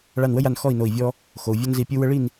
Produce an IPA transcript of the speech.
ɭ a˧˩ n w ə˦ j a˧˩ n x ɔ˥˨ i̯ n o˧˩ i̯ vʲ ɔ˦ | x o˩ u̯ vʲ ɔ˦ n z i˧˩ pʲ u˦ w ə˦ ɭ i˥˨ n

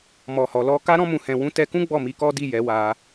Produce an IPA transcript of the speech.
m ɔ˨ h ɔ˨ l ɔ˧ k a˧ ɾ ɔ̃˧ m ũ˨ h ɛ̃˨ w ũ˨˦ t ɛ˧ k ũ˦ ɡ͡b ɔ˦˨ m i˧ k ɔ˦ d i˦˨ j ɛ˨˦ w a˧

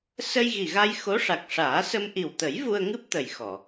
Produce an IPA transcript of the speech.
s ə˧ j ɣ i˨˩ ɣ a˧ j x o˧˥ ʂ a˨˩ k̚ ʂ aː˨˩˦ s ə˧ m ʔ i˨˩ w t̪ ə˨˩˦ j v u˧ ə̯ ŋ ɨ˦˥ p̚ t̪ ə˨˩ j x ɔ˨˩˨

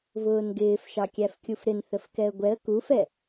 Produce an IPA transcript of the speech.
v ʊː n ɡ ɪː f ʃ ɑ kʲ æ f kʲ u f ɾ ɪ n θ ə f k ɛ ə̯ ɡʷ ɛ ə̯ k u f ɛ

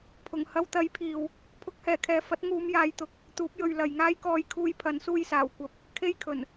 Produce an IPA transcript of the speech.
pʰ ʊ˨˩ ŋ h ɐ˧ w t̪ ɐ˨˥ j pʰ iː˨ w | pʰ ʊ˨˥ k̚ h ɛː˨˩ kʰ ɛː˨ f ɐ˨˥ t̚ ŋ uː˨˧ m j aː˨˧ j t̪ ʊ˨˥ k̚ | t̪ uː˨˥ p̚ j ɵ˨ ɥ l ɐ˨ j ŋ aː˥ j k ɔː˧ j kʰ uː˧ j pʰ ɐ˨˥ n s uː˧ j s aː˨˩ w kʷ ɐ˧ p̚ | kʰ e˥ j kʰ ɵ˨˩ n

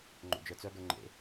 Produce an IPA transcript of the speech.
ŋ͡ǃ o̰ d͡ʒ ə˞ t͡s œ ɡ ə˞ ŋ͡ǃ ḛ

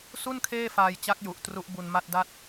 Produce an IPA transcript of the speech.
s u˥˩ n kʰ eː˥˩ f aː˧ j t͡ɕ a˦˥ k̚ j u˨˩ ʔ t r u˦˥ ʔ b u˧ n m a˥˩ t̚ d a˥˩ t̚

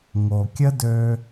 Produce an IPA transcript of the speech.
ŋ o˩ kʲ ə˥ d ø˧

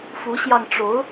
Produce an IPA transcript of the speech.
f u˧˥ ɕ j ɑ˧ ŋ ʈ͡ʂ o˧˥ ʊ̯

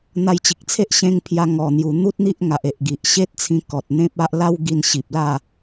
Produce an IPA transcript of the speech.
n̪ a˧ j t͡ɕ i˨ k̚ t͡sʰ e˦ ʔ ɕ ẽ˧ ŋ pʰ j a˧ ŋ ɔ˨˩ n̪ j u˨˩ n̪ u˦ t̚ n̪ i˦ ʔ ŋ a˨ ʔ e˨ ʔ ɡ i˨ ʔ ɕ e˦ t̚ t͡sʰ ĩ˧ k ɔ˨ t̚ n̪ ẽ˦ p̚ a˦ ʔ l a˦ w ɡ i˧ n ɕ i˨ p̚ l a˥˧

